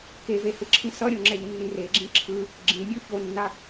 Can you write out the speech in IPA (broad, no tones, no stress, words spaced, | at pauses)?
kevehɯǁʰĩ sʌɾʲõŋ͡ǁɛʎnːĩ reɡ͡ǁĩ ǁʰɯ | ɡ͡ǁĩmʲo çonːa